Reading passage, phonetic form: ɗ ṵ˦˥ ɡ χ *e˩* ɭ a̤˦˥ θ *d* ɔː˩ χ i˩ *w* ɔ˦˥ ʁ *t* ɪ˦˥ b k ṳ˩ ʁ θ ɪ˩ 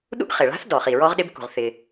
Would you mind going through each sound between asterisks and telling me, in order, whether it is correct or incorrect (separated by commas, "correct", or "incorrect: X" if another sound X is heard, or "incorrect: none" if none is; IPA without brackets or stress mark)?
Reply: correct, correct, incorrect: ɹ, incorrect: ɗ